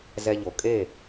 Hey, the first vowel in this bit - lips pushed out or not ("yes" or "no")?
no